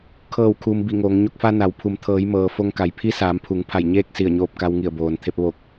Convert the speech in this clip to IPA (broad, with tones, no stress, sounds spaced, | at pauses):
kʰ ɤː˧˩ w kʰ uː˩ m b i˧˩ ŋ oː˩˧ ŋ ɲ o˧ k̚ f a˧ n a˩˧ w pʰ u˩˧ m t̪ʰ ɤː˩˧ j m ɤː˩ f o˧ ŋ k a˩ j pʰ i˧˥ s aː˩˧ m pʰ u˩˧ ŋ pʰ a˧˩ j ɲ eː˥˨ k̚ s i˧˩ ə̯ ɲ oː˧ p̚ k a˧ w ŋ i˧˩ ə̯ b oː˩ n t̪ʰ e˧ p̚ ʋ o˧˩ k̚